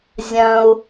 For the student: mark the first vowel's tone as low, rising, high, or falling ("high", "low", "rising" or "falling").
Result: low